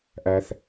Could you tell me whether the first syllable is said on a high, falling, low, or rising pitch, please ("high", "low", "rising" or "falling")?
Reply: low